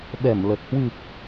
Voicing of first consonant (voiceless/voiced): voiced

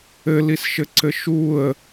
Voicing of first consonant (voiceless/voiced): voiced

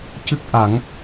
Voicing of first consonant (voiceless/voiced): voiceless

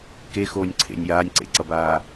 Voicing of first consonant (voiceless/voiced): voiceless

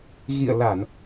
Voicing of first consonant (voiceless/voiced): voiced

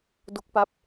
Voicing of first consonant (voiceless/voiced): voiced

